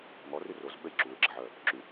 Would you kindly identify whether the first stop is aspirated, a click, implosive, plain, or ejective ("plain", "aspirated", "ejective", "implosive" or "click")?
implosive